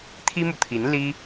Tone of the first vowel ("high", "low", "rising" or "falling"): high